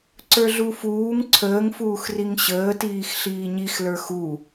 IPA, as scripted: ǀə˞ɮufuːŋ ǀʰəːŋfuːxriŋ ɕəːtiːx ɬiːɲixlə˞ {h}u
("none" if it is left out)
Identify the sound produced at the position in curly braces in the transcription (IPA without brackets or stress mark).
x